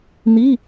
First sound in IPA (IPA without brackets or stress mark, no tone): n̪